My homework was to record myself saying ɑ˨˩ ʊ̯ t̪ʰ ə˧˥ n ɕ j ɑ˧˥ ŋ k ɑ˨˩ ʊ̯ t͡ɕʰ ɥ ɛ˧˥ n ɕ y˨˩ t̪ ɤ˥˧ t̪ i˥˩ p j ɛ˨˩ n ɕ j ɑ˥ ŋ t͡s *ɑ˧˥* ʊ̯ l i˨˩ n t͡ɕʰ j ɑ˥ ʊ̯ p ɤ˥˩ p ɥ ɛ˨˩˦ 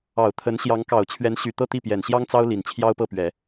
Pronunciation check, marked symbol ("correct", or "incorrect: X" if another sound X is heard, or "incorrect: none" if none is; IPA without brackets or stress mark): incorrect: ɑ˥